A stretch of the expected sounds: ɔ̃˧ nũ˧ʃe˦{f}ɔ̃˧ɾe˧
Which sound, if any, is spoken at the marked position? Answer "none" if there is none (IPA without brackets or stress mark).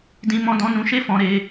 f